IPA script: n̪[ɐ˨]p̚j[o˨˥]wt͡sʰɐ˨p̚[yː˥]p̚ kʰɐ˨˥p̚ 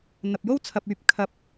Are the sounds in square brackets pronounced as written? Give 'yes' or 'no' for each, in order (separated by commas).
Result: yes, no, no